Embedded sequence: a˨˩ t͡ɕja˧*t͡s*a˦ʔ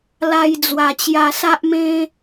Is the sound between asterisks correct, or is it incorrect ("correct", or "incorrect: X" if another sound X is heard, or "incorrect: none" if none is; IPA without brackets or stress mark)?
incorrect: s